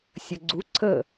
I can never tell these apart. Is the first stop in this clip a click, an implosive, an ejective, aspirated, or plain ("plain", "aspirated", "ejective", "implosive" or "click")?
click